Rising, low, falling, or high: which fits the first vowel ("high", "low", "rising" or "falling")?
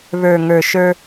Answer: low